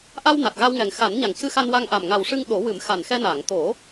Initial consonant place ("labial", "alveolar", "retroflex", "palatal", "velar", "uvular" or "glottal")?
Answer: glottal